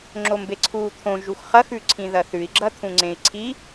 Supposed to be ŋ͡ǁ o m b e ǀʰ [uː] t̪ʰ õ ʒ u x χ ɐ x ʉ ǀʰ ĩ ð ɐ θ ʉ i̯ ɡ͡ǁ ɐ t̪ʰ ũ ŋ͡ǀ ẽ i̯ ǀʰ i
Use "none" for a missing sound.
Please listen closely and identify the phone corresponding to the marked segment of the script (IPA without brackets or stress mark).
uː